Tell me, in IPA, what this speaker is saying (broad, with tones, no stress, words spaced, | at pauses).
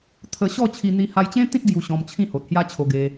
t̪ʰə˧ ɕɔ˥˧t͡ɕʰi˧ n̪i˧ha˧jt͡ɕẽ˦t̪ĩ˦t̚ ɡju˧ɕɔ̃˧mt͡ɕʰĩ˥˧ ho˨t̚hja˦t͡ɕʰo˧ɡe˧